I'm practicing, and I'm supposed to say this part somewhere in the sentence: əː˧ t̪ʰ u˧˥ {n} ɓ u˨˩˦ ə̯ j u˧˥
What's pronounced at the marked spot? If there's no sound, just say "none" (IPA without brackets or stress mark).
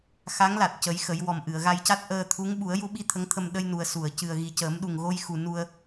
ŋ